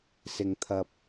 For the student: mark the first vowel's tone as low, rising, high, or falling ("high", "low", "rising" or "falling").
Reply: low